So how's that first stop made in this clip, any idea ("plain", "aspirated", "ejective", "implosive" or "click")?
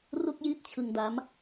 plain